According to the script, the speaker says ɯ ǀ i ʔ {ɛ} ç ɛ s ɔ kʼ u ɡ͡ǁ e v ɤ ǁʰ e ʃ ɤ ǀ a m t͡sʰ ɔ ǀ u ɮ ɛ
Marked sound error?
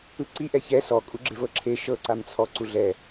no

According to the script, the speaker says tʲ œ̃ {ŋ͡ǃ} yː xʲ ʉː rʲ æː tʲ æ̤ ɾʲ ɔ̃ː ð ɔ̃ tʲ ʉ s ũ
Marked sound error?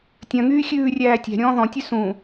yes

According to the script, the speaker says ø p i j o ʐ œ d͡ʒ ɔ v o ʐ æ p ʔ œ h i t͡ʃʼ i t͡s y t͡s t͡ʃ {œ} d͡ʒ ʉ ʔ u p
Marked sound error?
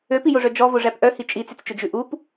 yes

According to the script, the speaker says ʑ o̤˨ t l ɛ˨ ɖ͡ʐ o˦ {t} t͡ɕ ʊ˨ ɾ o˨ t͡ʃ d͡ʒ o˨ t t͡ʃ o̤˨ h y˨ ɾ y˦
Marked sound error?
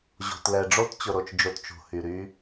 no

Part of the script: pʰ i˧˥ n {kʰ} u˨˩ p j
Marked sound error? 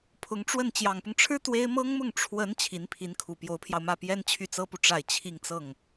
no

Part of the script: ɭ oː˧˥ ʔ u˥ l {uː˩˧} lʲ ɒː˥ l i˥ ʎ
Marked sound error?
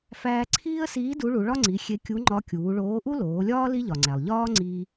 yes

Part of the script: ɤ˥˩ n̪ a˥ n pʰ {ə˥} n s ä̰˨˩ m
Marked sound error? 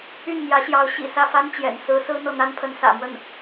yes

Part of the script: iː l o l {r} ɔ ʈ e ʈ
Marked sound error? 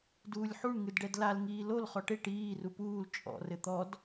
yes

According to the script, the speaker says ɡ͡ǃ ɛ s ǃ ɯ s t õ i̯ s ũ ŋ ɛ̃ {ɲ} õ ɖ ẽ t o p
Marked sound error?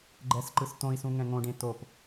yes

